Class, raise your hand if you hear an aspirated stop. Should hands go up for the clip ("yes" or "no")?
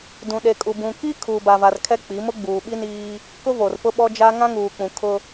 yes